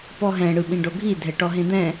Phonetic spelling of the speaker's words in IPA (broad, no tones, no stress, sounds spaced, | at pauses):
p ɔ ɦ ɛ̃ ɽ ɯ ɓ ĩ ɖ o ɡʱ i dʱ ɛ ʈ ɔ ɦ ẽ d̪ ɛ̃